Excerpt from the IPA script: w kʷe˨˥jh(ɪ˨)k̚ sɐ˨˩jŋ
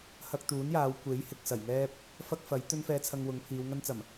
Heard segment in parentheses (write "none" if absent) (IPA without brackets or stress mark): ɪ˨